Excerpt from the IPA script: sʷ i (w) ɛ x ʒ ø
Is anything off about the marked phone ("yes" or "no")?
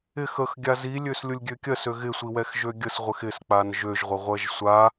no